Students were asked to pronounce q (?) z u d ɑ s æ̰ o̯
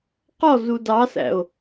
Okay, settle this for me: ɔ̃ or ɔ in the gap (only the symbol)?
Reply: ɔ